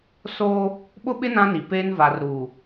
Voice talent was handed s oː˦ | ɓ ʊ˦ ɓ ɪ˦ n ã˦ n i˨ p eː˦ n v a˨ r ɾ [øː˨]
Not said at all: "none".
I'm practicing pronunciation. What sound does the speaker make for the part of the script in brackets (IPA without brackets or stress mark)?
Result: uː˨